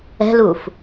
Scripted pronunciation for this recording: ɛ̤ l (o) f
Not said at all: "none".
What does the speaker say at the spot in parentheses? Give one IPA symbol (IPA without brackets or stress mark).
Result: u